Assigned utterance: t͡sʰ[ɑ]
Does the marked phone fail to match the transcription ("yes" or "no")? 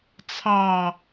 no